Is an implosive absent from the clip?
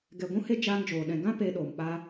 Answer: no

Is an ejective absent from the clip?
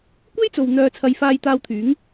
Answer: yes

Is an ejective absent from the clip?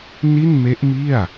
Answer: yes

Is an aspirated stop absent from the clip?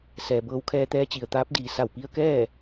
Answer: no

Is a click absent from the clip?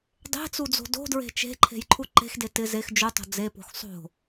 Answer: no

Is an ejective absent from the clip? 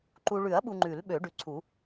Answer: yes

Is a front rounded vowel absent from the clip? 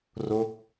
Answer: yes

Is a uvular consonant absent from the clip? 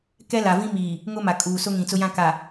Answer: yes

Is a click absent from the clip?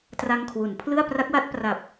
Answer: yes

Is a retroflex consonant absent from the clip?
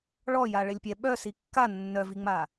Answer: no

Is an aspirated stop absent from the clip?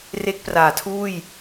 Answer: no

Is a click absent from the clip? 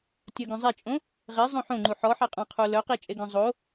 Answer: no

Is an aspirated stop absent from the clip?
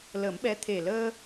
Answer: no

